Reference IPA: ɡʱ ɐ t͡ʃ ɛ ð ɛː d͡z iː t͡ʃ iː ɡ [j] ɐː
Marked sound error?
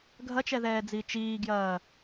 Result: no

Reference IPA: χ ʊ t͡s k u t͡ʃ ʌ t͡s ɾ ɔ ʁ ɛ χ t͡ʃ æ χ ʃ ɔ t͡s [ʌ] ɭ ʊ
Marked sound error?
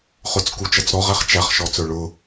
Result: yes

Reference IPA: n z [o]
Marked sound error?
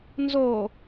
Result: no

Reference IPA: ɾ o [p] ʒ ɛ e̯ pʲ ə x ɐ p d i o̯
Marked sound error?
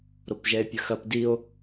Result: no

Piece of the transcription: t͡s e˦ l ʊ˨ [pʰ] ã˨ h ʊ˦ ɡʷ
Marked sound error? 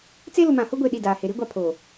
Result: yes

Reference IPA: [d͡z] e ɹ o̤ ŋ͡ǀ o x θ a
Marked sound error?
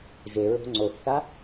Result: yes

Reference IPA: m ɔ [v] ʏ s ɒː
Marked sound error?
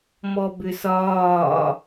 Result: yes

